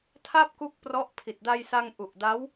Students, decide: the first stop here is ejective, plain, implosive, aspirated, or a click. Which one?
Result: aspirated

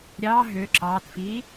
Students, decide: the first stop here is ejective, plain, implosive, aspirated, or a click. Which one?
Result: click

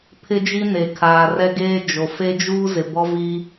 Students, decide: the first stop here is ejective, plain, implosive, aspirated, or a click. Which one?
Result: aspirated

